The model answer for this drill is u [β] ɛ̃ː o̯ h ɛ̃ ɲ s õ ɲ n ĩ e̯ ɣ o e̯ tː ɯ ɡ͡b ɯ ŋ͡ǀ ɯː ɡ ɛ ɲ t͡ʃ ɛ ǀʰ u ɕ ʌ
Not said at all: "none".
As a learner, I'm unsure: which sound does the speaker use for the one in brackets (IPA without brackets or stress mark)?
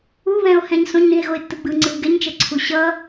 β